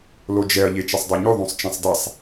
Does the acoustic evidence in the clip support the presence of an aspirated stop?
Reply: no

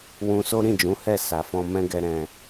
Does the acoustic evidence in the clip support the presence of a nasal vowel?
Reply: yes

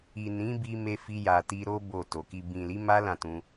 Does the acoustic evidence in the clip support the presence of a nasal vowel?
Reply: yes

